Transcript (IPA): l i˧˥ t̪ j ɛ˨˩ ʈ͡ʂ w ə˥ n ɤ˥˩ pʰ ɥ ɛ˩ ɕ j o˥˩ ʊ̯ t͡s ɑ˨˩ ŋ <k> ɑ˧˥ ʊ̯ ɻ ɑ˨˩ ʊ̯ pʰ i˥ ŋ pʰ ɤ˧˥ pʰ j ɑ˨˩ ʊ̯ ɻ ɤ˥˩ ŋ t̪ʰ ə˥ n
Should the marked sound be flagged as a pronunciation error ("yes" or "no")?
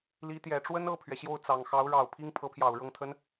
yes